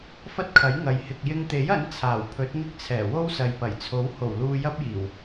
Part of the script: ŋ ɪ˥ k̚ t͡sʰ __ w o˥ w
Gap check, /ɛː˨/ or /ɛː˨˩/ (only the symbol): ɛː˨˩